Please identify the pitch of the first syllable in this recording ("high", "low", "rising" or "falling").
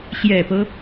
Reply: low